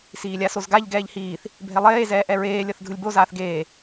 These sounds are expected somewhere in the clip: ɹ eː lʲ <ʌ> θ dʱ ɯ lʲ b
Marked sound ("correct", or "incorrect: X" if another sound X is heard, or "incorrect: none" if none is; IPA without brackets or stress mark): correct